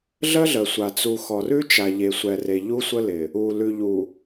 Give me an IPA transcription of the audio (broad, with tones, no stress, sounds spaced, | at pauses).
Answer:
ɮ ə˦ ɮ ə˨ sʷ a˨ t͡s u˨ x ɔ˨ r ʉ˦ t͡ʃ a˨ ʎ e˨ sʷ ɛ˨ r e˨ ʎ u˦ sʷ ə˦ l ɪ˨ | u˨ l ʉ˨ ʎ u˨